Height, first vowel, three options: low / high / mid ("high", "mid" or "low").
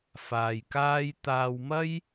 low